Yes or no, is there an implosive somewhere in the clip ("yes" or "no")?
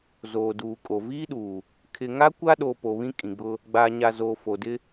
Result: yes